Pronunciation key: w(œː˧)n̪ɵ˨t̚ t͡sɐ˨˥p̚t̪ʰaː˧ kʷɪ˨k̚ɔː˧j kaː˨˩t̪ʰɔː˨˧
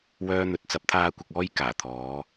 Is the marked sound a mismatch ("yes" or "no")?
no